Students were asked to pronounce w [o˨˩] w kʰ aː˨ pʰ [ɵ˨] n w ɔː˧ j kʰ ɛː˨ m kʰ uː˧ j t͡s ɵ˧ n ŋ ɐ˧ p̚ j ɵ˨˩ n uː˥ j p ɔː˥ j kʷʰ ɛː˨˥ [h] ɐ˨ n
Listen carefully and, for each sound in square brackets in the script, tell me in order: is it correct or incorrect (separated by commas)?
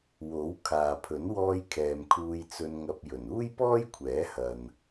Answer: incorrect, incorrect, correct